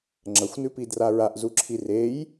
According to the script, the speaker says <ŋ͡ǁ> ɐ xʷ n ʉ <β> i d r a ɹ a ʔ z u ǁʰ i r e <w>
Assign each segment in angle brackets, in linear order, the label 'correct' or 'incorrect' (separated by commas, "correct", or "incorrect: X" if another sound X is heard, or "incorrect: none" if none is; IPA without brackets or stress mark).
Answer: correct, incorrect: p, incorrect: j